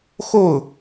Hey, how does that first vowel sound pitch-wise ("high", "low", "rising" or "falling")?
falling